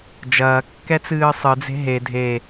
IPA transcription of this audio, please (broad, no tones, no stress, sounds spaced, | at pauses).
d͡ʒ ɐː kː ɛ t͡s ɨː sˤ ɨ d͡z e̤ ɦ e dʱ e